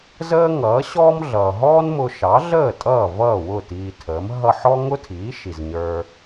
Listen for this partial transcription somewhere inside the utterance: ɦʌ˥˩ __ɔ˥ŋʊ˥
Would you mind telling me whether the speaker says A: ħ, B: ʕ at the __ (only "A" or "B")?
A